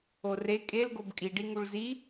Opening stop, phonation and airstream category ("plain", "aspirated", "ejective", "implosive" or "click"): ejective